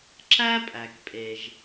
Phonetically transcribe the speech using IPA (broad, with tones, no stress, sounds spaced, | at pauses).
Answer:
ǁ æ˥ pʼ æ˩ k pʼ e˩ ʒ